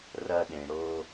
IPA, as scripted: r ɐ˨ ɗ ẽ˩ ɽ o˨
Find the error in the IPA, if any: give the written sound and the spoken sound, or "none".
none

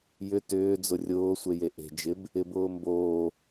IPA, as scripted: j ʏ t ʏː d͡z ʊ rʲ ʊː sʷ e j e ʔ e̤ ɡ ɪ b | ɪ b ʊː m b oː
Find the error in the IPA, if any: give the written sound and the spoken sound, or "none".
ɡ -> d͡ʒ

